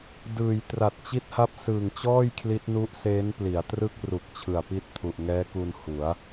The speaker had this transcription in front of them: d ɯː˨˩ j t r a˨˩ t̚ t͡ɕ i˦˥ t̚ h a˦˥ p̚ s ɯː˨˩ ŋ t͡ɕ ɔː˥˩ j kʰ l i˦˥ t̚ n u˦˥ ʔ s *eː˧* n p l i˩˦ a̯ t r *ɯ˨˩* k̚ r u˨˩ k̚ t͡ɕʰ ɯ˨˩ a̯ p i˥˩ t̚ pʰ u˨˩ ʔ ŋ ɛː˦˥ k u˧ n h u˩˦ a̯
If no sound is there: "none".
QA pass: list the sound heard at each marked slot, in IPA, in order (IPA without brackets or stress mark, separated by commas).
eː˦˥, ɯ˥˩